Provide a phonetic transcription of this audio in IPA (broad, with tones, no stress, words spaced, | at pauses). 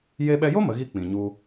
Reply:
je˧ɓɛ˧jo˦ mə˨˦ɣi˦ k͡pĩ˨ɲu˧